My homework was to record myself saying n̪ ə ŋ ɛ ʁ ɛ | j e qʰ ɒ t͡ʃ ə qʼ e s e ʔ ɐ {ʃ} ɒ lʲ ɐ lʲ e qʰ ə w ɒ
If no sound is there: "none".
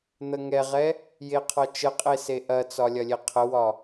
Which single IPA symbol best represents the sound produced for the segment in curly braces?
t͡s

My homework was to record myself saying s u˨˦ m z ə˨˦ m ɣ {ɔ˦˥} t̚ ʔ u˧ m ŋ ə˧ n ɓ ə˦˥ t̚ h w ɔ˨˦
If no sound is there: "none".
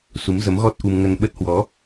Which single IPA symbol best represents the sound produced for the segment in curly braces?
ɔ˦˥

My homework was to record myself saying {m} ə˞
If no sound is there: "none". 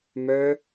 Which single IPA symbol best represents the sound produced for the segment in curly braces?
m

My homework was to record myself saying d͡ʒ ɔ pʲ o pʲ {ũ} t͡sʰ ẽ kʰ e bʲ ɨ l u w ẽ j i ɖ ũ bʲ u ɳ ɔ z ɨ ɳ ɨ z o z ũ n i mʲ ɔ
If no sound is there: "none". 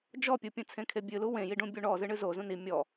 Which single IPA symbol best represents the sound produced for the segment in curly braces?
ũ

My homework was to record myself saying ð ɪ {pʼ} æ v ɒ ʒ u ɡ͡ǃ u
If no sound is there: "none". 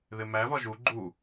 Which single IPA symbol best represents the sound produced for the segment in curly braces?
m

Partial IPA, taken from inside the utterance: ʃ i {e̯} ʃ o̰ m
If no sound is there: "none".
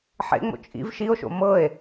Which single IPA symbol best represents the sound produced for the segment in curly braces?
o̯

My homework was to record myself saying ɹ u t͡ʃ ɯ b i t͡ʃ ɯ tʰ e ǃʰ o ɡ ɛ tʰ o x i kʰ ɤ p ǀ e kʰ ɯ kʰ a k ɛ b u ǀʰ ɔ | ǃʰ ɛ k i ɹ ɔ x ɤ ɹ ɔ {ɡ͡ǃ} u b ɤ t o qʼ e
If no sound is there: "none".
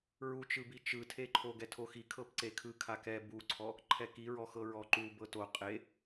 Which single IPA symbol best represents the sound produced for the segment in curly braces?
ǃ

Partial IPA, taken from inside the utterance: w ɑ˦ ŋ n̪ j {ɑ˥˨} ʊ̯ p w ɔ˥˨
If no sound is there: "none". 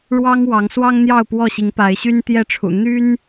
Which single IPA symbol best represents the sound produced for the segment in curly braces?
ɑ˥˨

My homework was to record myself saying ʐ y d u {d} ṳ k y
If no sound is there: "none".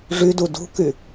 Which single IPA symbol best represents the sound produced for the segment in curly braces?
d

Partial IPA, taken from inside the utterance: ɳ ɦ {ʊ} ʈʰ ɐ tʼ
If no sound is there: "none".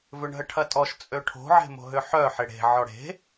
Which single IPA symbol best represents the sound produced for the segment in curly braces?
ə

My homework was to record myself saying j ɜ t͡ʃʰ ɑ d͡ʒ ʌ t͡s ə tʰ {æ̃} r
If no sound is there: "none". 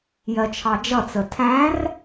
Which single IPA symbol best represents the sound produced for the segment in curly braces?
æ̃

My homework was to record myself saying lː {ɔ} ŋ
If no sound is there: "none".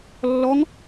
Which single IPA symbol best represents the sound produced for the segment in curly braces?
ɔ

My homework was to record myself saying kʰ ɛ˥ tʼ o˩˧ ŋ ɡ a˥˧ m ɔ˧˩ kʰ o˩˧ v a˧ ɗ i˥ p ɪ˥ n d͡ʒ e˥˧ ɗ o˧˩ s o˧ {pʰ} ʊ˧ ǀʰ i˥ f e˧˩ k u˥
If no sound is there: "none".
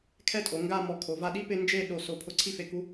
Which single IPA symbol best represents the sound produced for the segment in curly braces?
pʰ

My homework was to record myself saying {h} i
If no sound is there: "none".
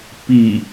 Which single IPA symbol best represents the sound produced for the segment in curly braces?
p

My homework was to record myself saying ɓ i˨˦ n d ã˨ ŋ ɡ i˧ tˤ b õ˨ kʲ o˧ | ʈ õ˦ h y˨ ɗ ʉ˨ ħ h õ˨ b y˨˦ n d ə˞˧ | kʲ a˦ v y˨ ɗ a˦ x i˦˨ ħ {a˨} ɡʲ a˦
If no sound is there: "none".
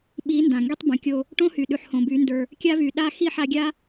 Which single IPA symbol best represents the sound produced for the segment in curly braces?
a˧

